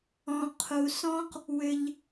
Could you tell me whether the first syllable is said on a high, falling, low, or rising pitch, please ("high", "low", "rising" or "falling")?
low